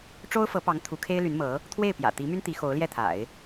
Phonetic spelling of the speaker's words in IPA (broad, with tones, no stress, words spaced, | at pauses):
ʈ͡ʂo˥ʊ̯fɤ˧˥pɑ˧˥ŋ t̪ʰu˧˥kʰe˥ɪ̯ly˧˥nmɤ˧˥ | t̪ʰwe˥˩ɪ̯pjä̰˨˩t̪i˧˥my˥n t̪i˧˥ xo˧˥ʊ̯ljɛ˥˩t̪ʰa̰˨˩˦ɪ̯